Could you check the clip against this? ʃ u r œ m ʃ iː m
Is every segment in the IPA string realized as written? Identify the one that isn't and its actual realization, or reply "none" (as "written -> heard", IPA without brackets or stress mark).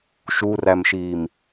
œ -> æ